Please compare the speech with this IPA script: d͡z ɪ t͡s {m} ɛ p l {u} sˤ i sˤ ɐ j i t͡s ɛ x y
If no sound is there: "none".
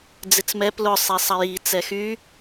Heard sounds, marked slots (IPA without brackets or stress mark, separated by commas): m, ʊ